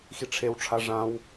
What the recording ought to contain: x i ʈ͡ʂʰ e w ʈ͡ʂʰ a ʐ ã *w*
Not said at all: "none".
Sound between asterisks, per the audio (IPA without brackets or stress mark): w